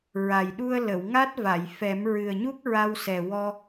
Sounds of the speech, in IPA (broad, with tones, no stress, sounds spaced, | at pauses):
ɹ a˨˩ j ɗ u˧ ə̯ l ə˨˩˨ w ŋ a˦˥ t̚ v a˨˩˨ j f ɛ˨˩˦ m ɹ ɨ˨˩ ə̯ ɲ u˦˥ k̚ ɹ a˧ w s ɛ˨˩ w ɔ˧